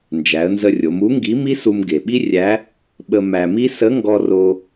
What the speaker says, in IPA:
nd͡ʒæ˩˧ə̯nzə˧rʲo˩˧m u˧˥ŋɡi˧˥mi˥su˧m ɡe˩ɓi˥rʲæ˧˥ | ɓə˧ mæ˧mi˥ sə˧˥ŋɡɔ˧ ro˧

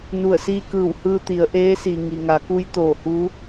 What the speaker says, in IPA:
nu˧˩ə̯siː˧ kɯː˧˩whɯː˧t̪i˩˧ə̯ ʔeː˧˥si˩ ŋi˩ŋa˩˧ ku˧˥jt̪oː˧˩hu˧˥

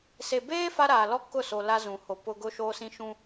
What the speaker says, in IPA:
se˨beː˦ fa˦ɾaː˨ lɔ˦ kʊ˦˨so˨ la˦zũ˨ho˨ pʊ˦ ɡʊ˦ʃoː˦ sĩ˦ʃũ˦

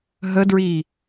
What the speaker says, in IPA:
ɦədɹi

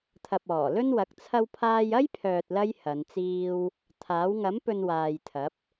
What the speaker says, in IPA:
t̪ʰɐ˨p̚ɔː˨˩lɵ˥nwɐ˨˥k̚ t͡sʰɐ˥wpʰaː˥j ɐ˥jpʰœː˨t̚lɐ˧j hɐ˨˧nt͡siː˥w | t̪ʰaː˨˥w ŋɐ˨˥mpɵ˨n waː˨jt̪ʰɐ˨˥p̚

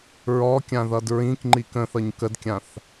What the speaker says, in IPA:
ɹɔkʲãðʌd ɹĩkŋ͡ǃi kə̃θʌɲ kədkʲãθ

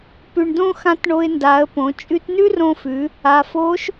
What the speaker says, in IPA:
pʉ˩ɳdõ˧ xã˧˥tɳo˧ɪ̯nda˩˧ə̯põ˩˧ t͡ʃʼʉ˧tnʉ˥rõ˧fʉ˩˧ | a˩fo˧˥ʃ

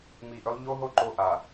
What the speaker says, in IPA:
mi˨ʔʏ˦lˠ ʎo˦ɦo˦ ǃo˦ʔa˨

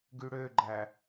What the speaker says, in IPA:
ɡyɽøɡ͡ǃæ

